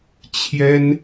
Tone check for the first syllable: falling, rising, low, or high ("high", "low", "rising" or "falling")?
high